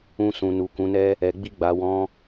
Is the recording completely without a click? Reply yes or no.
yes